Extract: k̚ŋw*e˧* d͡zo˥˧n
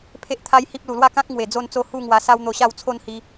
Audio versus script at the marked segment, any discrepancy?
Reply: yes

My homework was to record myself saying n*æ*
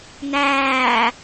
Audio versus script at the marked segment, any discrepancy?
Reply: yes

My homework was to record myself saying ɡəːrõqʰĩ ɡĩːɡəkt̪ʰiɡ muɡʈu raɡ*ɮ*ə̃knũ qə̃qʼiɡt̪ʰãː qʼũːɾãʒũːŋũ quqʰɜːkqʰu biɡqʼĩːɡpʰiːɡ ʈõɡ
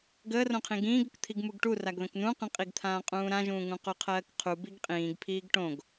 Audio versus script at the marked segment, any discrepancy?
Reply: yes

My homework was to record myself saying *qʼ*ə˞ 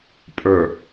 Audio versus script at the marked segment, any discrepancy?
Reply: yes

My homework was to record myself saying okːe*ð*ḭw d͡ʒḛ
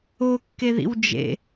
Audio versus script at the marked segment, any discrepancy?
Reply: no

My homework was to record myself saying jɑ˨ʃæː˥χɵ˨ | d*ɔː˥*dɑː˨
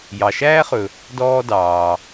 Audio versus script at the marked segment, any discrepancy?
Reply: no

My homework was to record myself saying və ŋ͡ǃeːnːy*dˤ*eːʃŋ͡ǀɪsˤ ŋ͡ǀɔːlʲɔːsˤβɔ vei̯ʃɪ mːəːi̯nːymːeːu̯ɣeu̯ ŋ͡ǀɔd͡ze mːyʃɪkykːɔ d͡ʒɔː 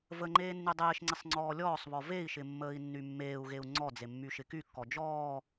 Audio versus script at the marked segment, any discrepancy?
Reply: no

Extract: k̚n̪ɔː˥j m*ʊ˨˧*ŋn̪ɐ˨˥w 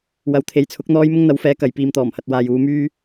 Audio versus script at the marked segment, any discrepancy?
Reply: yes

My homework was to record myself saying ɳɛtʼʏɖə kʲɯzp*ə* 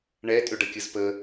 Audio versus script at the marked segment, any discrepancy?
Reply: no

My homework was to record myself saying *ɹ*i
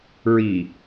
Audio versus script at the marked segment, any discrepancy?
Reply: no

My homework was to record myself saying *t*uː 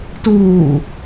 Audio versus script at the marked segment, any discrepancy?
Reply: no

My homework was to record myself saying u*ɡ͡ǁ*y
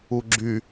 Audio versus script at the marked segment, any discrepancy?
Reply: no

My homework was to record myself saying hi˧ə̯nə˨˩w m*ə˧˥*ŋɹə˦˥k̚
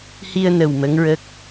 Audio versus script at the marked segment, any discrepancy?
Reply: no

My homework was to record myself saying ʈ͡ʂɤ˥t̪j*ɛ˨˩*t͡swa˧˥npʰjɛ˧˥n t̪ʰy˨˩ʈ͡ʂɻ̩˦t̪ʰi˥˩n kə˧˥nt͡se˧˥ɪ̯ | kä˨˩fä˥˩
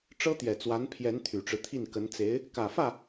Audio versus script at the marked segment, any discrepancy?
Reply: no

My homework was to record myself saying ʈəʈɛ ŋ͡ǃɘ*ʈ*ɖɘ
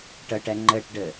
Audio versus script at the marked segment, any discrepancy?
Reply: no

